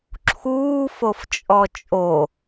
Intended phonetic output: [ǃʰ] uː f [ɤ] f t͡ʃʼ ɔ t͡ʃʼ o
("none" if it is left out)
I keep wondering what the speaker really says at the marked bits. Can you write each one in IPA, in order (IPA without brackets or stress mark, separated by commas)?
ǁʰ, o